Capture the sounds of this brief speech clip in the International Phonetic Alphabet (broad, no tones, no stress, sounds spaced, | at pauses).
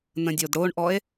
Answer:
n ə̃ dʲ o d ɽ o ɳ ʔ ɔ e̯